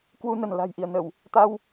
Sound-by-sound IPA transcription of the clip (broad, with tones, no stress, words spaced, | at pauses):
kwu˧nə˧˩n la̤˨˩jʔi˧˩ə̯nə˧˩˨w | t̪a˧w